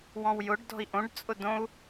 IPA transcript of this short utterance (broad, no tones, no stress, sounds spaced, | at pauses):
w ɔ̃ w j ʊ ɖ d ɔ̤ i̯ ʔ õ ɖ t͡sʼ ʊ d õ u̯